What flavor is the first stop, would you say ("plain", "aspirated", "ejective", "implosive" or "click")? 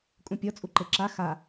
ejective